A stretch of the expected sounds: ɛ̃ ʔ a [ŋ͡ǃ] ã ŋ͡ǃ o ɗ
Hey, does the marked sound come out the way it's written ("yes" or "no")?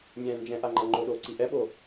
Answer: yes